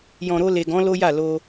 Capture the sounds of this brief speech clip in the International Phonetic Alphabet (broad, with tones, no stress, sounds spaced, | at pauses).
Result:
j ɔ̃˨ ɾ o˧ l e˨ ɡ ɔ̃˨˦ l o˦ j a˦˨ l o˧